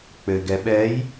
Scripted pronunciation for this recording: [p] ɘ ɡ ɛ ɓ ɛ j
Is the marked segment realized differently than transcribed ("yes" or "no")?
yes